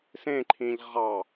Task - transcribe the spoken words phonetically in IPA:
sẽǃʰĩʎ ʁɑ

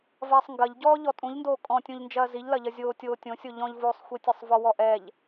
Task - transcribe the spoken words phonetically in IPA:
vɐːsˤŋɡɐʎɟɔː ʎɔtʼũʎndoː kʼɔ̃tʲũʎ nd͡ʒɐːziʎlɐʎɐ zʲoːtʲoːtʲõsʲo ʎɔ̃ʎvoːsˤxʷitʲɐsˤ vɔwɔʔɛʎ

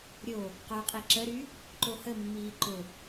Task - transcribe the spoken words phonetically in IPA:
ɾʲo | qœqʼi ǁəɾy | ǃohəmːiː ǃʊ

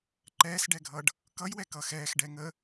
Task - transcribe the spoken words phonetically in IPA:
ǃɛːsɖɛɡʱʌɖ | kʌjwɛkʌːx ɛːxɖɛ ŋə

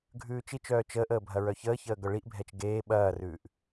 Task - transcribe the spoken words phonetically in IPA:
ɡʱʉːt͡ʃit͡ʃœː t͡ʃəːʔəː bʱɐɹœçəːçəː ɡœɭiʔbʱɛt͡ʃ ɡeː ɓɐːrʉːʔ

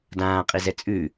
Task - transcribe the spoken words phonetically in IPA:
dãːqʼizɛ t͡sʼʉ

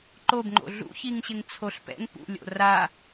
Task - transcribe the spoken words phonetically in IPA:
ǃobŋ͡ǃo̰ ɮṵçiŋɕɪŋt͡sʰoɬ pɛ̰ŋ pṵlʲo̰ ra

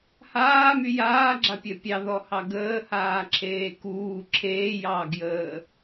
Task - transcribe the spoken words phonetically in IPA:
haːmy jaːɡ͡ǁapʲɜ pʲɑðɔhɑ ɡəːhaːǁʰeː kuː ǁʰeːjɑːɡjəː

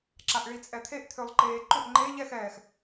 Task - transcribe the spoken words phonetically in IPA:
ǁaʔɭit͡sʼɛt̪ʰeʔ t̪ʰølˠǃeːǃʏʔ ŋ͡ǃe ʎɛx ɛːx

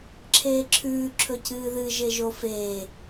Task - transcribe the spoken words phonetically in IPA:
ǁʰeːǁʰʉː ǁʰɵcɨːðɨ ʒeʒofeː

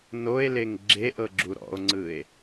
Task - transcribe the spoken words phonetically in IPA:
noe̯leŋ ɡ͡ǁeʔɤ ɡ͡ǁuɾɔ̰o̯ŋ͡ǀɯe̯

